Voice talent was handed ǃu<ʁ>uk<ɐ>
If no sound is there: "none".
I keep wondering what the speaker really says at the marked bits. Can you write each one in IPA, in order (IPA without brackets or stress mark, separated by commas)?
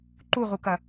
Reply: ʁ, ɐ